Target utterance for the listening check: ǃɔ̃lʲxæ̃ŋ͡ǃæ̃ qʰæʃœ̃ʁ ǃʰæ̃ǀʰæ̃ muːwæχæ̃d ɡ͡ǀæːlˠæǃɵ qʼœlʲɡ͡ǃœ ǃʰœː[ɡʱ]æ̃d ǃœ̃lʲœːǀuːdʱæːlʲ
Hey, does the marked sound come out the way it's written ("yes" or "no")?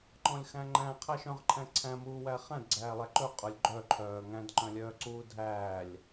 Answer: no